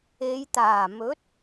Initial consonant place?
palatal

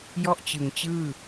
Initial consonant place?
palatal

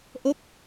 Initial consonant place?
glottal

